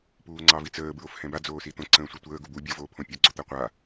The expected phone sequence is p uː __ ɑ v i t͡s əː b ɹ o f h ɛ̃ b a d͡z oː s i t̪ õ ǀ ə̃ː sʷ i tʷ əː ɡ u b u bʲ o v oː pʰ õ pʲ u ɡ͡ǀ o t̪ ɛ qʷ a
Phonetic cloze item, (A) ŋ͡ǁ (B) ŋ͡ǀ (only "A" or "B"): B